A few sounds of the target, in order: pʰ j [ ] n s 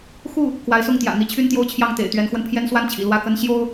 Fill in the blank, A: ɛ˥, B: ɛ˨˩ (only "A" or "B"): A